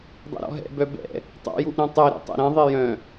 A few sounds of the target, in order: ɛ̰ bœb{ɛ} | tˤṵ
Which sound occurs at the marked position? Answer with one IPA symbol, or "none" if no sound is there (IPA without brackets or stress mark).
ɛ̰